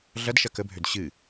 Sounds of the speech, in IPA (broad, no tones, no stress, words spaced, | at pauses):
ɮɐdʃɐ kəbʱød ɕɨ